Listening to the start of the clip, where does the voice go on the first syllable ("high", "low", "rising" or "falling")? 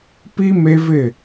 high